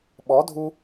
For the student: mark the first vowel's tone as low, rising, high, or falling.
rising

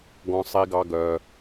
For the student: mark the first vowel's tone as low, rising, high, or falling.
high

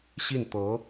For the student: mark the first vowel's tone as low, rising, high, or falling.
falling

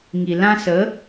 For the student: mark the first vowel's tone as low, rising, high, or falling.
low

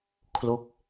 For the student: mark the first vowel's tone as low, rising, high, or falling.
falling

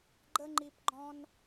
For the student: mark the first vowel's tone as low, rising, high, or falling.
high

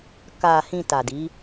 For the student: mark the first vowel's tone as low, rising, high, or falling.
low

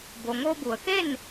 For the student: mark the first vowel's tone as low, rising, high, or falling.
low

